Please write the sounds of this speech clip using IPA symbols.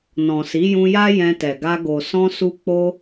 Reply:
n ɔ̃˨ s i˨˦ j ũ˧ j a˦ j ɛ̃˧ t ɛ˨ ɡ a˧ ɡ o˨ s ɔ̃˧ s u˧ k͡p o˧

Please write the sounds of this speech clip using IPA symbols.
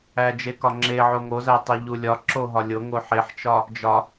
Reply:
æ d͡ʒ e k ɒ ŋ͡ǁ e ʕ o ŋ o z æ tˤ i ʎ u lʲ ɒ ǁ o ɦ ɒ lʲ o ŋ o ħ e ħ t͡ʃ ɒ | d͡ʒ ɒ

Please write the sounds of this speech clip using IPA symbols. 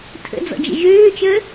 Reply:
tʰ ə̰ d͡z ɔ̰ d͡ʒ ə̰ ʒ øː t͡ʃ əː

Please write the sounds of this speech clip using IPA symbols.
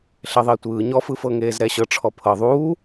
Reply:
ɬ ɛ ðˤ e tʷ ɯː ɲ ɔ f ɯ f ɤ ŋ eː z ɾ ɛ ɕ ɤ ʈ͡ʂʰ ɔ pʰ ɤ ðˤ uː

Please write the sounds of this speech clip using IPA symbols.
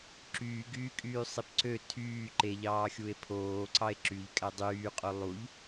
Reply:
ǁ yː ɡ yː kʼ yː sˤ i p ǀ ø tʰ yː ǃ e ʎ ɑː xʲ u e̯ pʰ oː ǀ ɑ e̯ ǁ y ʎ kʼ æ dˤ yː qʼ o lˠ u ʎ

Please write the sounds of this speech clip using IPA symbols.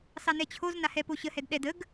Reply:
s ɑ n ɛ t͡ɕʰ o z n a h ɛ p o ɕ ə h ɛ d ɗ ɛ d ə ɡ

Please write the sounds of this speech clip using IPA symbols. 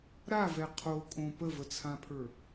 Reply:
ɾ a v ɛ qʰ o kʼ õ p ə v ə t͡sʰ ã pʰ ə˞

